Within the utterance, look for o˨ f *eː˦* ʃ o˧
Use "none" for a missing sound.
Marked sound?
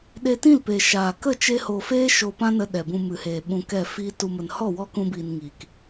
eː˦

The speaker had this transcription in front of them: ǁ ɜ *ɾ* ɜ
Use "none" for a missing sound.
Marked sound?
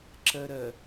ɾ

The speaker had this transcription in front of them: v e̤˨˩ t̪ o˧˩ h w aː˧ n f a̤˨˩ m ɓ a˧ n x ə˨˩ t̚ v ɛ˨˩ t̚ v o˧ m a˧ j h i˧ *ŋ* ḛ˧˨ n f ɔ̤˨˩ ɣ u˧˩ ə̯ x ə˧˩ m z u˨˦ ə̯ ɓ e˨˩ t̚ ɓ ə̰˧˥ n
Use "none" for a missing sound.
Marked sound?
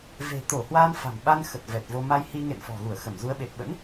ŋ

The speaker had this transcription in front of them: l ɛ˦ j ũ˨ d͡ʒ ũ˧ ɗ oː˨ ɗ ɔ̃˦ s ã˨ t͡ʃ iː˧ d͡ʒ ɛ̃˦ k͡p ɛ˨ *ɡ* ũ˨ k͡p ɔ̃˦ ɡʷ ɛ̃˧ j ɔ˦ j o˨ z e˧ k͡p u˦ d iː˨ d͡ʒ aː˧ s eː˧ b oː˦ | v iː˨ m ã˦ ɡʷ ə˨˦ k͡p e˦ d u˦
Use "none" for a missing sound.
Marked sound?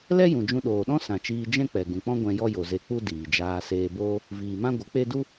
ɡ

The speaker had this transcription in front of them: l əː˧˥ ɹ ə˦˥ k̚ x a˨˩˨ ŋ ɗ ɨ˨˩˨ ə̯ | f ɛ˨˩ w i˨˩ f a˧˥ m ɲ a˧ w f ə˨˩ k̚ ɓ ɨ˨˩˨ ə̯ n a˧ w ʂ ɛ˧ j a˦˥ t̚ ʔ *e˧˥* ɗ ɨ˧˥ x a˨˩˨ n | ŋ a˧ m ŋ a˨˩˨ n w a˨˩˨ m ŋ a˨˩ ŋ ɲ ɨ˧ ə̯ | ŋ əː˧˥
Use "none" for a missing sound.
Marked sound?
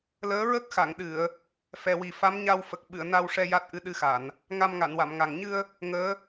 ɨ˧˥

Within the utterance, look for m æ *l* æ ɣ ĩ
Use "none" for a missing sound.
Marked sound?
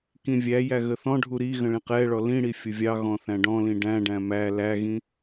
l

